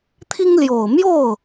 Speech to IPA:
t̪ʰ i˥ ŋ l j o˨˩ ʊ̯ m j o˥˩ ʊ̯

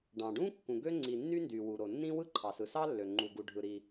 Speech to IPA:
ɖ ɑ̃˨ ɖ ũ˥ kː ũ˨ ɡ ø˥ ŋ͡ǀ i˨ nː y˥ n d y˨ w u˨ ɾ o˨ nː ĩ˥ w ɯ˥ ǃʰ ɑ˨ s ɯ˨ s ɑ˥ lː ø˨ ŋ͡ǃ u˨ ɡ u˨ ɖʱ ɯ˨ ɾ i˨

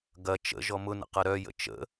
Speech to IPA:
ɡ ɐ t͡ʃ ə̰ ʒ ɔ m ʊ n ə̰ q ɐ ɾ œ j ə̰ t͡ʃ ə̰

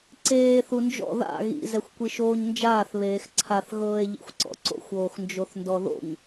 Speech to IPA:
ǀ eː θ u n d͡ʒ ɔ̰ ð a̰ ɣ ḭ z ɛ xʷ kʷ i ʃ oː ɲ n d͡ʒ aː θ β eː x ǀʰ a θ ɣ ɤː e̯ ʎ ḭ xʷ ǀ ɔ̰ ǀ o̰ xʷ oː x n d͡ʒ o θ n d ɔ ð o̰ ɲ

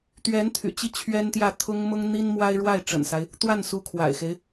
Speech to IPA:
t̪ ɥ ɛ˧˥ n t̪ʰ y̰˨˩ t͡ɕ i˥ t͡ɕʰ ɥ ɛ˥ n t̪ j ä˥˩ t̪ʰ ʊ˥ ŋ m ʊ˥ ŋ n̪ i˥ n m w a˥ ɪ̯ ɻ w a˥˩ ɪ̯ ʈ͡ʂ ə̰˨˩ n s a˦ ɪ̯ | t̪ w a˥˩ n s u˧˥ kʰ w a̰˨˩ ɪ̯ x e˦ ɪ̯

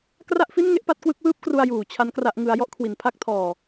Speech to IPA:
k r a˥˩ ʔ f i˥˩ n ŋ e˥˩ ʔ p a˦˥ t̚ k w ɯ˦˥ k̚ w ɯː˥˩ p̚ k r u˧ a̯ j uː˨˩ t͡ɕʰ a˦˥ n k r a˦˥ ʔ ŋ ɯ˦˥ a̯ j ɔ˦˥ ʔ kʰ w i˩˦ n pʰ a˥˩ k̚ tʰ ɔː˧

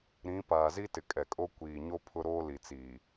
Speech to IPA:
ɾ ĩ˨˦ p aː˨ z i˦ t ɪ˨ kʼ ɛ˨ kʼ o˦ kʷ iː˨ ɲ o˦ pʰ ʊ˦ ɾ oː˦ l i˨ t͡s iː˨

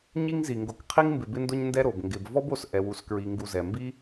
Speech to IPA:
ɲ i˦ ŋ z i˩ ŋ ɡ o˨ k qʰ i˦ ŋ m b ɪ˨ b ɪ˦ n d ʊ˦ ɲ n d ɛ˦ ɾ o˩ b ŋ ɡ ɪ˨ b v ɔ˥ b o˨ s ʔ ɛ˨ w u˨ s k ɹ i˨ ŋ ɡ u˨ z ɛ˩ m b i˥

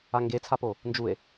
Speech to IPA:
a ŋ ɡ e t͡sʰ a p o | n d͡ʒ u e̯

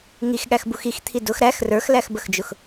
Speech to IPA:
ŋ i x ɠ æ x b u x i x t̪ʰ i d ʊ x ɾ æ x r ə˞ x l æ x b ə x d͡ʒ ʊ x

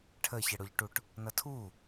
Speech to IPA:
ʈʰ ə ç ə ɽ ʊ ʎ ʈ u ʈ | n ʌ tʰ u

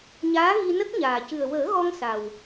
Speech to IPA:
ɲ aː˧˥ ɣ i˧ n ə˦˥ k̚ ɲ aː˨˩ c ɨ˨˩ ə̯ w əː˨˩˦ ɣ ɔ˧ ŋ s a˨˩ w

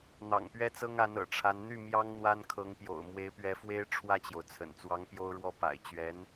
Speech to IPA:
n̪ ɑ̰˨˩ ŋ p ɥ ɛ˥ t͡s ɤ˥ ŋ a˧˥ n ɤ̰˨˩ ʈ͡ʂʰ a˧˥ n n̪ y˥˩ m j ɑ˥ ŋ n̪ w a˥ n kʰ ɤ˧˥ ŋ p j o̰˨˩ ʊ̯ m w e˧˥ ɪ̯ p ɥ ɛ˧˥ f w e˥ ɪ̯ ʈ͡ʂʰ w ä˥˩ t͡ɕ j o˩ ʊ̯ t͡sʰ ə̰˨˩ n t͡s w ɑ˧˥ ŋ p j o˥ ʊ̯ ɻ w ɔ˥ p a̰˨˩ ɪ̯ t͡ɕ ɥ ɛ˧˥ n

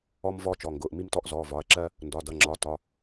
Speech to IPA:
ɔ˧ m v ɔː˧ t͡ʃ ɔ˩˧˩ ŋ ɡ ʊː˩˧˩ ʔ m i˧ m t ɔ˧ ʔ z ɔ˩˧˩ v ɒ˩˧˩ ɐ̯ ǁ ɜ˧ | n d ɒ˩˧˩ d ʌ˩˧˩ ŋ͡ǁ ɒ˩˧˩ t ɒ˩˧˩

